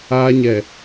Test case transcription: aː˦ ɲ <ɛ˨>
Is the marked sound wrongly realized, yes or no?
no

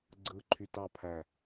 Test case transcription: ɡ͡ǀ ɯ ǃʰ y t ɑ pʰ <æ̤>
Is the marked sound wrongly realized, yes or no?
yes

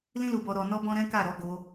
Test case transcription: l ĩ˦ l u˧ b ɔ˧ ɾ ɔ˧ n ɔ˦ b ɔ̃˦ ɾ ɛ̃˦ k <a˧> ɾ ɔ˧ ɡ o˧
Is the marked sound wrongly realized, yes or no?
yes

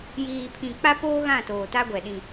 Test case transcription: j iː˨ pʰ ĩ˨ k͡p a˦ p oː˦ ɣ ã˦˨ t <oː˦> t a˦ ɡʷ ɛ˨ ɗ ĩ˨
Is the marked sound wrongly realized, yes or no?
yes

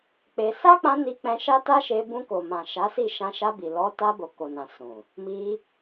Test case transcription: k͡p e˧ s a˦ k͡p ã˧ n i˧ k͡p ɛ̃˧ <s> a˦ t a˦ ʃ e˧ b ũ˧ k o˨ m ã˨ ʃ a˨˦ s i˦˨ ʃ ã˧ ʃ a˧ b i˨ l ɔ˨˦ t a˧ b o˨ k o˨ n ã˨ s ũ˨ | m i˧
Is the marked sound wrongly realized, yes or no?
yes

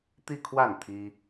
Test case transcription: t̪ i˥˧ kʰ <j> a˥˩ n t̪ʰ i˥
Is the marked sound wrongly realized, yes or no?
yes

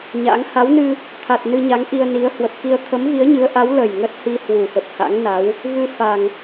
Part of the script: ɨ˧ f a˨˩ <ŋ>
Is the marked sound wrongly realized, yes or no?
no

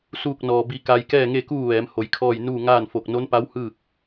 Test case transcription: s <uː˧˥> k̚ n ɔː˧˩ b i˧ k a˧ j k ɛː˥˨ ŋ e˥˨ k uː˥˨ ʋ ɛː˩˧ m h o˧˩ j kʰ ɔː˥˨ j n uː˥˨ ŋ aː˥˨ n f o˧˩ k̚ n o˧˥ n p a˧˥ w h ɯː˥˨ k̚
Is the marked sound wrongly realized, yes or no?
yes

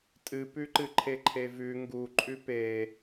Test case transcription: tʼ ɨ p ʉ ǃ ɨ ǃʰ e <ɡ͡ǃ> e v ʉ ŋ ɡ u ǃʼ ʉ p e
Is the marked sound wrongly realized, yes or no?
yes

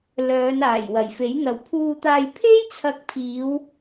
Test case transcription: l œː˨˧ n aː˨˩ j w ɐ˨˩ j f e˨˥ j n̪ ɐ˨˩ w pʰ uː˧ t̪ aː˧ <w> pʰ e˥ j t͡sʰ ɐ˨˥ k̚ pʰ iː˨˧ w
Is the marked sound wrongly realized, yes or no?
yes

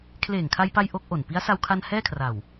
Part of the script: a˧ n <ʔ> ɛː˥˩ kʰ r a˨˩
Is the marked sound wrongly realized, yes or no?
yes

